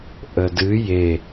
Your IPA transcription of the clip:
ʔədɨ je

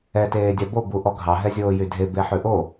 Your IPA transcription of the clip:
ɛ teːdʲɑbo buʔɔɡʱɑ ɦɛzʲoːjydʱe beħʉʔo

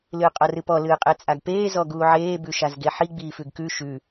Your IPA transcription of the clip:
lɨːqʼɔrɨpɔ lɨːqʼet͡sʼaɡpeː zɔɡuːʕeː bʉʃazɡeħi ɡ͡biːfʉɡkʉ ʃʉ

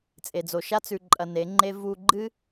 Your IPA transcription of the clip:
t͡sʼe˨d͡zo˨ʃa˦ t͡sʉ˧ǃʼɐ˧ne˨˦ŋ͡ǃe˦ vu˧ ɡ͡ǃɨ˦

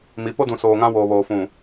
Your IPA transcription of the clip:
mi˨˦ po˦dũ˨ soː˨ŋã˦ woː˨βoː˨fũ˨

